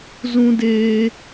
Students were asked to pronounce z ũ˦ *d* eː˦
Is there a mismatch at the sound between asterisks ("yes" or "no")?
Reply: no